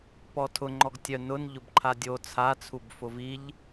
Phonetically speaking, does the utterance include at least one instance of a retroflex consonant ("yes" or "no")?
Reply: no